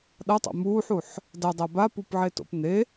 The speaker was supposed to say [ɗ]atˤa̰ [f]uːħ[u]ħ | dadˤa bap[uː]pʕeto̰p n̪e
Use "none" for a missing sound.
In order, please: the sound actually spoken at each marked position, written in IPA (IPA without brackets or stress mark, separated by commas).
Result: ɗ, m, u, u